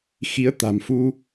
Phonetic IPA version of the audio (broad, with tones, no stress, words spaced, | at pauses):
xi˨˦ə̯t̪a̤˨˩mfu˧